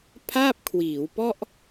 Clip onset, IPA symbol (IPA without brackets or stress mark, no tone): pʰ